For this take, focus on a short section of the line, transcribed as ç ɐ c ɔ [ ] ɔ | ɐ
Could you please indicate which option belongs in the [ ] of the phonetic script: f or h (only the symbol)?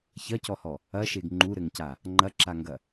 h